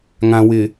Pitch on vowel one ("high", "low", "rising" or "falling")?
low